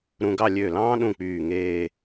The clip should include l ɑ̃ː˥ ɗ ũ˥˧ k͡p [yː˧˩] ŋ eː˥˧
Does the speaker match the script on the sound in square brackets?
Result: yes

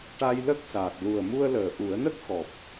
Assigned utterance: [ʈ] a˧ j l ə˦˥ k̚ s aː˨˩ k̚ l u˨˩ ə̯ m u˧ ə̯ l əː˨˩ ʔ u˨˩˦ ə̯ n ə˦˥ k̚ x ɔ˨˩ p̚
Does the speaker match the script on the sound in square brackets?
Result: yes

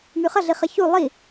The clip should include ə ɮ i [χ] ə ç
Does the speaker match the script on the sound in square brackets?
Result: yes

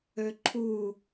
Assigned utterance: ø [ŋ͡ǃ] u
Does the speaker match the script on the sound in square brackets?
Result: no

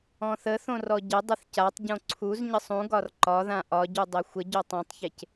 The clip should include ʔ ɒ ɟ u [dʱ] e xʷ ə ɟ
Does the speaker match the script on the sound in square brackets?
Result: no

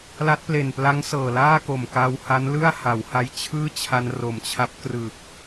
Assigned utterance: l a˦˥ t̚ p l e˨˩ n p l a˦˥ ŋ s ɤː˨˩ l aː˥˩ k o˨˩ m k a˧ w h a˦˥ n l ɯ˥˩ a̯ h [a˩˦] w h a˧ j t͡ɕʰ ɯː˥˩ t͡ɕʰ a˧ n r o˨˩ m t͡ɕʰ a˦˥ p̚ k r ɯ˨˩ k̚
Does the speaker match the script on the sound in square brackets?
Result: yes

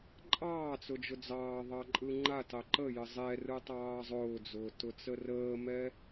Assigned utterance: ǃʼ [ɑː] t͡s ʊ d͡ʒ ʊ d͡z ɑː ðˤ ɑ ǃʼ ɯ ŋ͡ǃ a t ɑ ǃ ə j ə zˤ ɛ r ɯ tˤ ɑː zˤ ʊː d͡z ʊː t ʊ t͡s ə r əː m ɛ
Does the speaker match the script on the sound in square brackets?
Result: yes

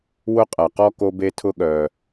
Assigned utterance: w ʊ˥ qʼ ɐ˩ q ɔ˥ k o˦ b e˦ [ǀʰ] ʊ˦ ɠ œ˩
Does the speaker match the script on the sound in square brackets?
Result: no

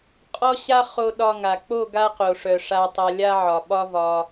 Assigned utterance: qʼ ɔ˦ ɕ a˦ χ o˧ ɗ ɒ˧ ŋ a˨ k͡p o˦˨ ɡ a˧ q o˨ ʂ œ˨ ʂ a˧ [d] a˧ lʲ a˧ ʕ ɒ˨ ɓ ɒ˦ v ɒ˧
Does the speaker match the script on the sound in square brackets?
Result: no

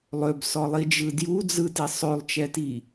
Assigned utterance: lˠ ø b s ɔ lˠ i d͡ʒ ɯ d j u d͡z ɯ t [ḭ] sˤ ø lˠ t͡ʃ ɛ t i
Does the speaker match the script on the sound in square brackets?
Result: no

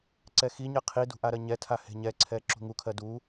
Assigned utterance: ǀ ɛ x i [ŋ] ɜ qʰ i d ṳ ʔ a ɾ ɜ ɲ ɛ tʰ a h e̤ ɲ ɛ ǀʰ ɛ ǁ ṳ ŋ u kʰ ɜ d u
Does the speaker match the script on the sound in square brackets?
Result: no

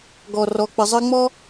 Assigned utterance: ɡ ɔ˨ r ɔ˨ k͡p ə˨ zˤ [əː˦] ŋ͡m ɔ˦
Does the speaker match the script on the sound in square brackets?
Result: yes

